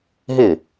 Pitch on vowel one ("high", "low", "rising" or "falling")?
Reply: falling